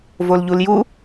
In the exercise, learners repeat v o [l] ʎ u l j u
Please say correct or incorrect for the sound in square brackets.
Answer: correct